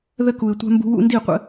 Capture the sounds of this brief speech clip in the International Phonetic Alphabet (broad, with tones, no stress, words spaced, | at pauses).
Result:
ðə˧ku˨ɪ̯tʷa̤˧mbṳ˧ wṵ˧ndi˦˨qʷə̰˦